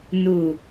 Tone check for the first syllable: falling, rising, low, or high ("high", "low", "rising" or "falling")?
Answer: low